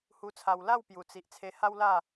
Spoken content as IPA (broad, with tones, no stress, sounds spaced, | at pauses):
h u˧ t͡sʰ a˧ w l a˥˧ w p j u˨˩ t͡s i˨ ʔ t͡sʰ e˧ h a˦ w l a˥˧